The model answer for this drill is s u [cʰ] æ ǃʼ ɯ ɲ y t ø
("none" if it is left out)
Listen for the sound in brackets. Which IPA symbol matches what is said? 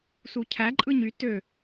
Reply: cʰ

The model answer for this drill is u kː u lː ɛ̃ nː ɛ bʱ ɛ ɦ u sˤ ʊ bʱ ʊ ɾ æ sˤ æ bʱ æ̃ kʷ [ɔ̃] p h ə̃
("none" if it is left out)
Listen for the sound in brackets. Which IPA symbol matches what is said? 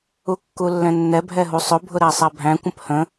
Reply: ə̃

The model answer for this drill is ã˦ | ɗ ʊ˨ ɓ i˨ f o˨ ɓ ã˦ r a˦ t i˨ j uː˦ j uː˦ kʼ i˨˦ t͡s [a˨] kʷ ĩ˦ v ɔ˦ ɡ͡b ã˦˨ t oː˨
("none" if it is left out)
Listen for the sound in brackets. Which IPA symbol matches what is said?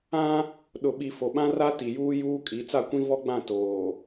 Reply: a˦˨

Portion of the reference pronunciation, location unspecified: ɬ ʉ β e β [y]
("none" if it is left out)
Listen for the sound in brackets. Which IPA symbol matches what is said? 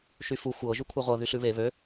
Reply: ø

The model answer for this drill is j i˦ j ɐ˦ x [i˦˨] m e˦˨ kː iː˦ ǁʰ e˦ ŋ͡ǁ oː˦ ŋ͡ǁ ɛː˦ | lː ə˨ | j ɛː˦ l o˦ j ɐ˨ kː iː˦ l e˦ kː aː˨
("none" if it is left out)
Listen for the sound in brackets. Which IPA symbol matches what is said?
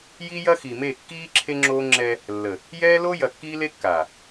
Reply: i˨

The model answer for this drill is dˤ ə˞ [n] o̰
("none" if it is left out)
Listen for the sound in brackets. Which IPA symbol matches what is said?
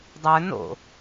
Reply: n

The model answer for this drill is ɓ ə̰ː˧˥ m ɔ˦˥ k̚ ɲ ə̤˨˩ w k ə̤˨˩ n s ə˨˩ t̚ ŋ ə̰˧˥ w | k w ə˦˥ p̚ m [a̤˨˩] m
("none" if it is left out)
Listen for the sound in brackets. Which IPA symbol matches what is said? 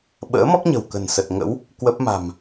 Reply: a̤˨˩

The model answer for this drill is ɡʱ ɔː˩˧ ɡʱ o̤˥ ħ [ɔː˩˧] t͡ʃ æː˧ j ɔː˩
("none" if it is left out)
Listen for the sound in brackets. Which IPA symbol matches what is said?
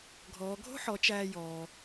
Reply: ɔ˩˧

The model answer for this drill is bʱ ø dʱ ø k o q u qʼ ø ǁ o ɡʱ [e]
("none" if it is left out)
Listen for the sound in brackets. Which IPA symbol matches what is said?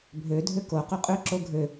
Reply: ø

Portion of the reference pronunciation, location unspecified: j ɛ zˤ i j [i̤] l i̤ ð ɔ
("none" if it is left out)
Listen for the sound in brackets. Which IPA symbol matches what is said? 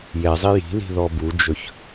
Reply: i̤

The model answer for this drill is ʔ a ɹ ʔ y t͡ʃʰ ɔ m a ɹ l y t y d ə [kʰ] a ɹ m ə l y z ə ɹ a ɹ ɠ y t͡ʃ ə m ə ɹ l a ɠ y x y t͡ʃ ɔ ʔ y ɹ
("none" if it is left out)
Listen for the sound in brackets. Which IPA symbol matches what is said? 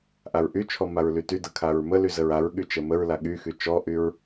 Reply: kʰ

